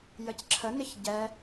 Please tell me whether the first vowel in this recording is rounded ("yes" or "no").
no